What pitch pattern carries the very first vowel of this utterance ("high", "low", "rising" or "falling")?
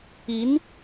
rising